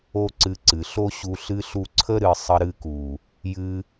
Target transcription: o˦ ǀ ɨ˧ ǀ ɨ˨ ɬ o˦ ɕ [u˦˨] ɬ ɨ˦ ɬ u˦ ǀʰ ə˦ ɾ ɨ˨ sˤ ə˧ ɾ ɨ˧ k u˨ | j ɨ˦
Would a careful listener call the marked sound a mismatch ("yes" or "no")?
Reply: yes